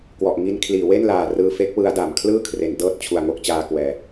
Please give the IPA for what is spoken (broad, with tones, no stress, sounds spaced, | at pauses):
k w ɔ˨˩ ʔ ŋ i˧ n kʰ l iː˩˦ w e˥˩ n l aː˨˩ r ɯː˧ f e˦˥ k̚ w ɯ˦˥ a̯ d a˩˦ m kʰ l ɯː˥˩ kʰ r e˩˦ n d ɤː˥˩ t̚ t͡ɕʰ u˨˩ a̯ ŋ o˥˩ k̚ t͡ɕ aː˧ k w ɛː˩˦